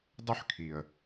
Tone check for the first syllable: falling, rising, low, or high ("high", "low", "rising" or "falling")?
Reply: high